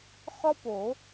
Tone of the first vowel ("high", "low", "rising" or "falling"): high